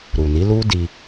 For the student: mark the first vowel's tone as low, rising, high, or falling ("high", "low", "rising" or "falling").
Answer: low